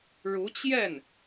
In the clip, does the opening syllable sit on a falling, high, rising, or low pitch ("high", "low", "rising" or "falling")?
rising